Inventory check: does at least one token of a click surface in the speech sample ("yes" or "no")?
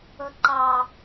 yes